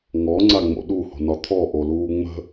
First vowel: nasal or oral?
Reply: oral